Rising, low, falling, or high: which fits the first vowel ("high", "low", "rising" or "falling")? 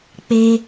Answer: high